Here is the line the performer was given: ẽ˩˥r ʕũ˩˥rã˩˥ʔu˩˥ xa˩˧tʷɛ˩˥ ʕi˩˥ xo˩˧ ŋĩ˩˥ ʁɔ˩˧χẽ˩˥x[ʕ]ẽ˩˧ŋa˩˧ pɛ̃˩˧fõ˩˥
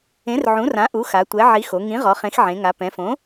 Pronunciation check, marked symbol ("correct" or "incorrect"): correct